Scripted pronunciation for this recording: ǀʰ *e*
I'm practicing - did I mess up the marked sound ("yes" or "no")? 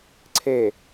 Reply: no